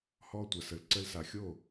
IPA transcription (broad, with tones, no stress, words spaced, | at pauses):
hɔ˦tʷa˨s ə˨lǀə˧lsa˨xʲo˦˨